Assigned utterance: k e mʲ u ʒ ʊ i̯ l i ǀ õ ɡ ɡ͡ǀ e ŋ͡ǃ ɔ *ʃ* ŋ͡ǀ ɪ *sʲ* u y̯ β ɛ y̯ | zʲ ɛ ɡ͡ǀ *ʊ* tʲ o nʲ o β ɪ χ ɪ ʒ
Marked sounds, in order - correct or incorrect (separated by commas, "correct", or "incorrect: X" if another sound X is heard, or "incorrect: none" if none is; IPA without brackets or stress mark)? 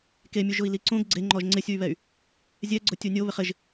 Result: incorrect: ʒ, correct, correct